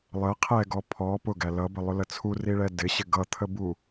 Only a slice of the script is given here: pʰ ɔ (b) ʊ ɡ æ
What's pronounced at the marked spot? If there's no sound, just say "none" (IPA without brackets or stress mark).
p